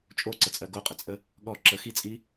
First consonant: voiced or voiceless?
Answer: voiceless